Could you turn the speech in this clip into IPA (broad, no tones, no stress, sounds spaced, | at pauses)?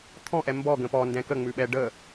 t̪ʰ ɔ̃ ʔ ɛ m b ɔ ɡ ə̃ p ɔ n d ɛ̃ k ə ŋ͡m ʉ ɓ ɛ ɖ ə